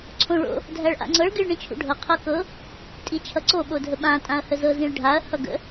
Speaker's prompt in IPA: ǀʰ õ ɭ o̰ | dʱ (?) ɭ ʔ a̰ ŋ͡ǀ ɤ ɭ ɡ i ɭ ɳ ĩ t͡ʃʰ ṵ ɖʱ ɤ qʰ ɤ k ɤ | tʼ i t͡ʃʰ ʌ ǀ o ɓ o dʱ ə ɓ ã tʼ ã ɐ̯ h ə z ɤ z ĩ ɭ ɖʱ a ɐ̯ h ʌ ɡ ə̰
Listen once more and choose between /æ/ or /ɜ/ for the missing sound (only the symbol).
æ